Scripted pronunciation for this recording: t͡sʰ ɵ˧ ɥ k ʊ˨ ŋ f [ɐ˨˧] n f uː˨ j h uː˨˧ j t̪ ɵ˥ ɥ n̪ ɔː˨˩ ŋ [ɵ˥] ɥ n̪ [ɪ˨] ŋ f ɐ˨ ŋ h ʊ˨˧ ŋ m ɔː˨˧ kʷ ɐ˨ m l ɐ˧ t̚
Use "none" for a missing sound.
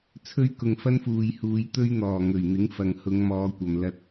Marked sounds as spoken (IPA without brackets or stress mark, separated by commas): ɐ˥, ɵ˨˩, ɪ˨˥